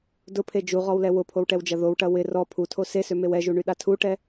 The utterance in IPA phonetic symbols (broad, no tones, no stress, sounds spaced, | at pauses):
d ʊ pʰ e d͡ʒ u ʁ ɔ w l ɛ w ʊ pʰ o w ʈ ɛ w d͡ʒ ɐ ð o w ʈ ɐ w ɪ r ɔ pʰ u tʰ o s e s ø m e w ɛ ʒ u ɳ y ɗ a tʰ u ʈ ɛ